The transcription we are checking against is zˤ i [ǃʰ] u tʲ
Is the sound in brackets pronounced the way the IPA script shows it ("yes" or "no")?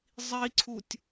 no